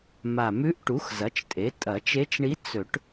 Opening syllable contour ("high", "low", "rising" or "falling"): low